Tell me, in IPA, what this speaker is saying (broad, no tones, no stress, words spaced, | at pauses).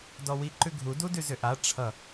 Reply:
dɔwi ǃʉɡʱu dudʉzʏʔa ʈ͡ʂʰʌ